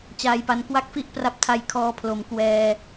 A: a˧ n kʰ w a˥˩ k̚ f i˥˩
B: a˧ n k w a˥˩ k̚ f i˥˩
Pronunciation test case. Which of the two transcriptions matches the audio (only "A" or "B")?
B